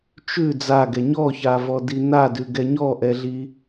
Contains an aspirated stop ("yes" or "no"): no